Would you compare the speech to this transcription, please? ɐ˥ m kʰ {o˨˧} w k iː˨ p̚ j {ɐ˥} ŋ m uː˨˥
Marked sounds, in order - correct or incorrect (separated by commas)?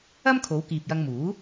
correct, incorrect